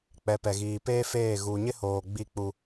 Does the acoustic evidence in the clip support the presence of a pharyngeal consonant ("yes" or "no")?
no